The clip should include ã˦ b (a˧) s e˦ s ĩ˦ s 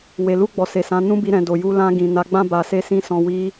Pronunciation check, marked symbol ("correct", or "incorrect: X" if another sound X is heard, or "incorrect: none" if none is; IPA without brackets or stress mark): correct